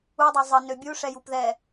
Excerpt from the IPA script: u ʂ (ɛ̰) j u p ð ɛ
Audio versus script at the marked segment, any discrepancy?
yes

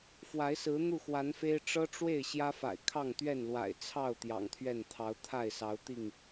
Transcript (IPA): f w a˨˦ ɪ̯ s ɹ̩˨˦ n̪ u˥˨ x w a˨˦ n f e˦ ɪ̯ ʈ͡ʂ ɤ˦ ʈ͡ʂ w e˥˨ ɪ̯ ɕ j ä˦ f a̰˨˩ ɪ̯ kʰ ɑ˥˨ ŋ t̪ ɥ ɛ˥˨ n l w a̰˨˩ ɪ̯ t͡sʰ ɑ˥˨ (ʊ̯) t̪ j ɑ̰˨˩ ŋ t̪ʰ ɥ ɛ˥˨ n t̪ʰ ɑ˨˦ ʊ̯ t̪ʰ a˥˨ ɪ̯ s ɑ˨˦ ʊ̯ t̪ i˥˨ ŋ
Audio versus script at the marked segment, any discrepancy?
no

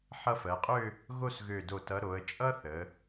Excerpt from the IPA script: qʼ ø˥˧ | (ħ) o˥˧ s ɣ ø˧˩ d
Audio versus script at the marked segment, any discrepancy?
yes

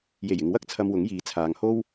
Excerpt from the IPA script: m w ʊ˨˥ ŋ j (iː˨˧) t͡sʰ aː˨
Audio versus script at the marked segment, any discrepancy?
no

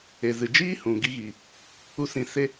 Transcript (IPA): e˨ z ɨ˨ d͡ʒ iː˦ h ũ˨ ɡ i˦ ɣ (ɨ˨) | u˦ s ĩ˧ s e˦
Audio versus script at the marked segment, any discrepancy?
yes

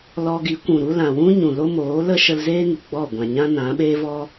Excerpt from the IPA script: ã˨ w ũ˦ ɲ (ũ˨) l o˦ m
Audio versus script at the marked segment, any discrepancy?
no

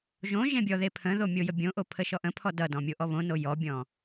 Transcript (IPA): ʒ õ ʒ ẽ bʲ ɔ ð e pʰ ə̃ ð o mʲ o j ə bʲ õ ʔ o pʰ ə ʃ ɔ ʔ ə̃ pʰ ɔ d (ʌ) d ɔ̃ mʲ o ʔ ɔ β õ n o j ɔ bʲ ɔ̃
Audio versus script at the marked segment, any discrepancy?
no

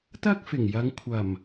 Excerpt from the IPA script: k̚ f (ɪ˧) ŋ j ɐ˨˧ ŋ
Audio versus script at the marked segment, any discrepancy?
yes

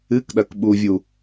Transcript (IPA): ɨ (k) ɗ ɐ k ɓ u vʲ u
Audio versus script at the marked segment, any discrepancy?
no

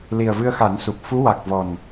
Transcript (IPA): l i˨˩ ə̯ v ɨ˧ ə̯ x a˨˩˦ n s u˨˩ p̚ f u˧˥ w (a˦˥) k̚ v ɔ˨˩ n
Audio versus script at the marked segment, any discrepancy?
yes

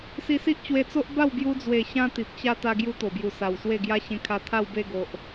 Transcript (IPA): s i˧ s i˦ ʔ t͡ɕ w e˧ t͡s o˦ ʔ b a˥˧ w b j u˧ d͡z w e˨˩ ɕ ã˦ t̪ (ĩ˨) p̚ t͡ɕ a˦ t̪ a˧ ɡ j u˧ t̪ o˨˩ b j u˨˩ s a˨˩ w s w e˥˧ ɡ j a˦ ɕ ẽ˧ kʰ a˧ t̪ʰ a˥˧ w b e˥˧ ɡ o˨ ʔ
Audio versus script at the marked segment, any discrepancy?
yes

